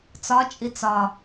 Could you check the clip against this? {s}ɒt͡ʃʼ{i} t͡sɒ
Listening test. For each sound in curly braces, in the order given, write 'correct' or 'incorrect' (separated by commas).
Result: incorrect, correct